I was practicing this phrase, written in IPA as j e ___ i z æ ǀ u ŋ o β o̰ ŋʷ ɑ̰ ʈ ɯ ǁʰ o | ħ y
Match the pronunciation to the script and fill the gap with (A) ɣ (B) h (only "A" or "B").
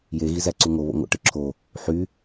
A